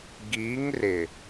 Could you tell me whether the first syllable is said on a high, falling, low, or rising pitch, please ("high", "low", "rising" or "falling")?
rising